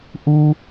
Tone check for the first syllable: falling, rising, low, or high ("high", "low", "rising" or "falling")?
high